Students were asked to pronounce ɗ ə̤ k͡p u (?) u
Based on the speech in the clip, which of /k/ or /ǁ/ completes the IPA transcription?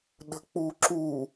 ǁ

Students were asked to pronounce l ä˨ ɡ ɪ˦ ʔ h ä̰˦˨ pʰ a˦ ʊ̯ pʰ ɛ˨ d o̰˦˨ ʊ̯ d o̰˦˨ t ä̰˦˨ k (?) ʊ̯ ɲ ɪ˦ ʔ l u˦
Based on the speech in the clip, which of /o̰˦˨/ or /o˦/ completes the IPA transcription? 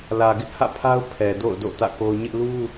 o˦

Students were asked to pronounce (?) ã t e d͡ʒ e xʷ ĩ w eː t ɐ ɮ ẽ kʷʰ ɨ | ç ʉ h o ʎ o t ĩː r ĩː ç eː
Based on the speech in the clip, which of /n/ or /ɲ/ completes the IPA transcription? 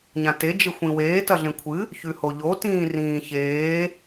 ɲ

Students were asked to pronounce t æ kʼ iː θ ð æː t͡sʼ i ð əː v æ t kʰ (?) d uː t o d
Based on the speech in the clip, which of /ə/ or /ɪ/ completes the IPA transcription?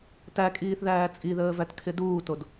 ɪ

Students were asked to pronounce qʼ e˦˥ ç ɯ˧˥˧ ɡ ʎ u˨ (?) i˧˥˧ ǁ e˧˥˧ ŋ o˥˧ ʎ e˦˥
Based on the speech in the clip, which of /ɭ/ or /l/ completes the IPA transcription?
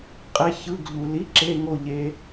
l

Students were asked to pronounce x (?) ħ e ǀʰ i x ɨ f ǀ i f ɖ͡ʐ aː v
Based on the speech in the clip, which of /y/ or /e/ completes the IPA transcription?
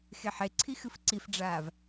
e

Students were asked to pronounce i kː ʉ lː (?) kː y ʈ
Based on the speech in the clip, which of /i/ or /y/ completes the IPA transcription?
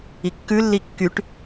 i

